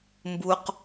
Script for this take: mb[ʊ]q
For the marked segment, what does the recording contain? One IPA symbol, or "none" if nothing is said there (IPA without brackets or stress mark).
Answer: u